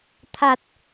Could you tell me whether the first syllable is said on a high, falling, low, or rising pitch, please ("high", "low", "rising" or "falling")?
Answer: low